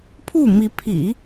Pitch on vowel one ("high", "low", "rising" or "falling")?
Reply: falling